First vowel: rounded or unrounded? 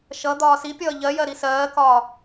unrounded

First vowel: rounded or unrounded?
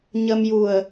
unrounded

